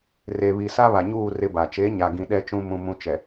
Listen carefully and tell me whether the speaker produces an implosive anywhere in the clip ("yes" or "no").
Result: yes